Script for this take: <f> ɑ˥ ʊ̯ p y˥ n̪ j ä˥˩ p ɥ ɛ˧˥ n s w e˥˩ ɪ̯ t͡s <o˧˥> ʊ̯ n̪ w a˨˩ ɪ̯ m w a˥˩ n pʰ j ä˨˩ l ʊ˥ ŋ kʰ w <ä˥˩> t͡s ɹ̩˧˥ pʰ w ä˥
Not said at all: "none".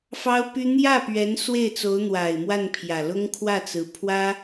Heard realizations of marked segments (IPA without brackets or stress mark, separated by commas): f, o˧˥, ä˥˩